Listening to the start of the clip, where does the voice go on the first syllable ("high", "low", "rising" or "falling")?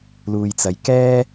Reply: low